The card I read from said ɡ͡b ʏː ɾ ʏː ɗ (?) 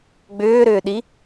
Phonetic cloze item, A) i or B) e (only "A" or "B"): A